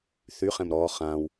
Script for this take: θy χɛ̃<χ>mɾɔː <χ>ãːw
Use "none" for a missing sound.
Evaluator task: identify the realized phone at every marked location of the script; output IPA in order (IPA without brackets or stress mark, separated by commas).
none, χ